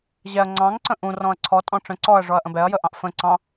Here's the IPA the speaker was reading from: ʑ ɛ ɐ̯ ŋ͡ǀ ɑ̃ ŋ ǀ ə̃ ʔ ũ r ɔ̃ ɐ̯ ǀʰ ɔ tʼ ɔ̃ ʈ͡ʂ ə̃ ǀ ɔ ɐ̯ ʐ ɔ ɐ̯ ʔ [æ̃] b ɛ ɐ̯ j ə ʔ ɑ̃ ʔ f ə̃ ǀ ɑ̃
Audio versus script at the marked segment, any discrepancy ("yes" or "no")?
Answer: yes